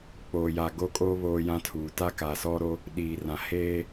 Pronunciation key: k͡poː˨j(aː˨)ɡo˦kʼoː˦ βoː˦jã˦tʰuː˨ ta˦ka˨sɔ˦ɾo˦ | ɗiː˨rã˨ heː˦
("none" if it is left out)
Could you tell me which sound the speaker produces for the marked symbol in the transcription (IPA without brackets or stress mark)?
a˨